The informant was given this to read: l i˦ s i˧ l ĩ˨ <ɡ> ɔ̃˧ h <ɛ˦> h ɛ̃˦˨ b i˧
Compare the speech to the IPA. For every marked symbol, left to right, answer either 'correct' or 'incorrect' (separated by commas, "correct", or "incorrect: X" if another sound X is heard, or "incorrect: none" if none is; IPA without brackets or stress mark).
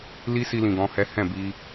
correct, correct